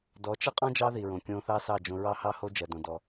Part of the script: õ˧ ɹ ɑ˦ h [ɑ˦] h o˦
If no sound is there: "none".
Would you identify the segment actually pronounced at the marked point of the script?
ɑ˦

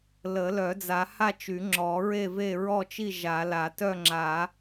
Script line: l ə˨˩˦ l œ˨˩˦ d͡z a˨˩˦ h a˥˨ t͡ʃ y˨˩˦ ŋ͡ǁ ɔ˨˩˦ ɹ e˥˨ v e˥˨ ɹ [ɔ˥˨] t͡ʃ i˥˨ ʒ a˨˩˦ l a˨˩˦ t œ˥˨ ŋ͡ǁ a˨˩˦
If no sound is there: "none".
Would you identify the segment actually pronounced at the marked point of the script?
ɔ˥˨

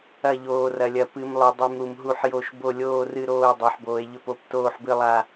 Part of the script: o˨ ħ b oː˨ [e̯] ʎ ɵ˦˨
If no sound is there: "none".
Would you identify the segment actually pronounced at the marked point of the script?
e̯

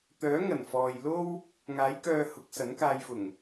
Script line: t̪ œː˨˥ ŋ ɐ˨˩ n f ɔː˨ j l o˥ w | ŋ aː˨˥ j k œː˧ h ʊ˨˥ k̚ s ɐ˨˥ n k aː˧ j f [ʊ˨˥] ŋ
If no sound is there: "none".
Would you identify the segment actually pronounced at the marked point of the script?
ʊ˨˩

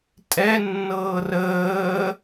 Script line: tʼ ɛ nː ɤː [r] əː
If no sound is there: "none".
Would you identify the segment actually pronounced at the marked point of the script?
r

